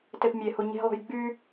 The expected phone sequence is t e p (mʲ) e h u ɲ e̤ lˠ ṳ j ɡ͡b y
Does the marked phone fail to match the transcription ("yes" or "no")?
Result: no